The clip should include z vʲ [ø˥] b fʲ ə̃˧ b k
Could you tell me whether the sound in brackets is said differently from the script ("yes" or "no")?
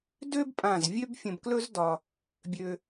no